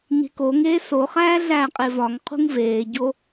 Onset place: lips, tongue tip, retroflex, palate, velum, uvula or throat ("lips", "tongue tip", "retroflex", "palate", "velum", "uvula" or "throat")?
palate